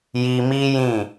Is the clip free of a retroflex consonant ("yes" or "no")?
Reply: yes